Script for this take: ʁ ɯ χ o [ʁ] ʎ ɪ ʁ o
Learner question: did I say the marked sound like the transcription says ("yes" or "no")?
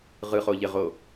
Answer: no